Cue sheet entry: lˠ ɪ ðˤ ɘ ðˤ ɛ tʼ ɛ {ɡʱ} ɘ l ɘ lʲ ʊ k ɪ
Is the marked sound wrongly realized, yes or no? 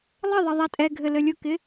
no